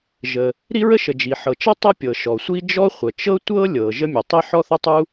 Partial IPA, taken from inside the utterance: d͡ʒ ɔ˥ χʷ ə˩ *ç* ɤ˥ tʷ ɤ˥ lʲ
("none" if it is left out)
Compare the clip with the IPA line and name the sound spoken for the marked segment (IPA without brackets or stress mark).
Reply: t͡ʃ